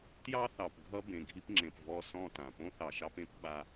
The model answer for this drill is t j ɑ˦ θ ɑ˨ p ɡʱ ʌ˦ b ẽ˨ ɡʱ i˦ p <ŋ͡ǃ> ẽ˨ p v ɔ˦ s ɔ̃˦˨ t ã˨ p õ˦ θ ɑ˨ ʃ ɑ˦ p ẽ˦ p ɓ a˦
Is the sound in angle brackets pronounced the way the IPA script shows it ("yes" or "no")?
no